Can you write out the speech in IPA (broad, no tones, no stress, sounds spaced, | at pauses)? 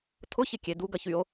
tʰ ʊ ç ɪ kʲ e d u ɡ ɐ ç y o̯